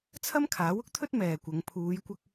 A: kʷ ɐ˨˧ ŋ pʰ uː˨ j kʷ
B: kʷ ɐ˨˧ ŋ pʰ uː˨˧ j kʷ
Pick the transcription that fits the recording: B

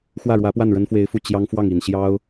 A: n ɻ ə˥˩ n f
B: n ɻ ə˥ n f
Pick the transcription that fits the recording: B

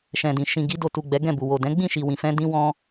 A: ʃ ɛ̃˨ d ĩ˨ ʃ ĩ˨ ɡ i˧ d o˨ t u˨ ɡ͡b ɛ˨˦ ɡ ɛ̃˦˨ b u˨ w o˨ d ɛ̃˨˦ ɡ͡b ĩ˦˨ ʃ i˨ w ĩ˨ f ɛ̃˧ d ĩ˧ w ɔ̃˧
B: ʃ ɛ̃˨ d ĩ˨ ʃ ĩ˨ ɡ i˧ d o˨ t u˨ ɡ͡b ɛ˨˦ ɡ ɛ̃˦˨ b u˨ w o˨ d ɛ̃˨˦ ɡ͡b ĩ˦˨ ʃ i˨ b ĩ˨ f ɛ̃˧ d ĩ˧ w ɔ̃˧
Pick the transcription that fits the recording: A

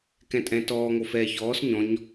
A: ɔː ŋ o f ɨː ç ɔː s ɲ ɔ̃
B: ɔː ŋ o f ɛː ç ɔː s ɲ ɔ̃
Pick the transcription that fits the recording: B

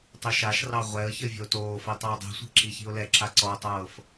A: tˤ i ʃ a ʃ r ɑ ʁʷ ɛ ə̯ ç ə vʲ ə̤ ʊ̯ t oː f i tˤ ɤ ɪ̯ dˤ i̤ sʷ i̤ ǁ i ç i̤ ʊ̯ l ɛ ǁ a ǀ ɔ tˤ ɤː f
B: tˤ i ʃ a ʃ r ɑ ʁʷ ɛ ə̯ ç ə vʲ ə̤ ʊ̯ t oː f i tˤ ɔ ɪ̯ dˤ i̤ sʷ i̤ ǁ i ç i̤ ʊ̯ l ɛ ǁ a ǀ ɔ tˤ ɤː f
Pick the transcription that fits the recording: A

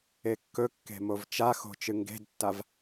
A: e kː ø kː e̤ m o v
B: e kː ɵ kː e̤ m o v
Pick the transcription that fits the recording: B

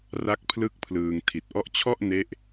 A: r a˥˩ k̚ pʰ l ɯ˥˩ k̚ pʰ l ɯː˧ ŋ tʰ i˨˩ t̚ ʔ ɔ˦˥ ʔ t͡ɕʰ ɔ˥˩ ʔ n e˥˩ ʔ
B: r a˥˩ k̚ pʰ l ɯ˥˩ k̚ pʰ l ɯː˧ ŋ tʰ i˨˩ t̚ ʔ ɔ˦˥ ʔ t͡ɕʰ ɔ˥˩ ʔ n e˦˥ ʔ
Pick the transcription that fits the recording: A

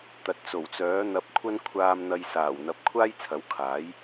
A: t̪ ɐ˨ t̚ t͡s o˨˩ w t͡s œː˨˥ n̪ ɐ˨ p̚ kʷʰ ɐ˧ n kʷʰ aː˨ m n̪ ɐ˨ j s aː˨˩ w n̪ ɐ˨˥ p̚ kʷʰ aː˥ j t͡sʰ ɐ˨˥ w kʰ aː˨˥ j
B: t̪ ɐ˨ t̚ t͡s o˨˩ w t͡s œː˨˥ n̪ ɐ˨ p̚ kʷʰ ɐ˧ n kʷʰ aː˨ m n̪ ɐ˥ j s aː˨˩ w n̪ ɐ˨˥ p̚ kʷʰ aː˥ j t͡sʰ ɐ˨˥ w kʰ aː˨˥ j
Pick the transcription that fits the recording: A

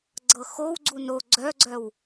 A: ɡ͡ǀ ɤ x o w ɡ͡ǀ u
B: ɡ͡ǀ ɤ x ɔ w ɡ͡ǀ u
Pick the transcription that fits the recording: A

